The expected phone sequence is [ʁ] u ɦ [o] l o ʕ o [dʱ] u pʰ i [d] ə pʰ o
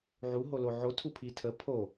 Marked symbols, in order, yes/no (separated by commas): no, yes, no, no